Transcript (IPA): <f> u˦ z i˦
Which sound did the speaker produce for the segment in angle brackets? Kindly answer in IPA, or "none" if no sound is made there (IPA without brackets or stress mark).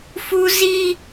f